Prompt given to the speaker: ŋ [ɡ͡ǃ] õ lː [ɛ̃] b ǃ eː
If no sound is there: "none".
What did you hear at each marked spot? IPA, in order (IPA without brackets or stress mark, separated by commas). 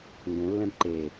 ɡ, ɛ̃